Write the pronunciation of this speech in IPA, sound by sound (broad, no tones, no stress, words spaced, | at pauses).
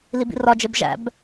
libḭrɒd͡ʒeb ʒæ̰b